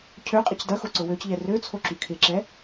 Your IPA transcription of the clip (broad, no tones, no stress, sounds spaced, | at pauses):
cʰ ø qʼ ɪ c d ɐ x o ǀ ʊ w ø c ʎ ɛ r ø t͡sʰ o ǁ y kʰ ɪ ǁ ɛ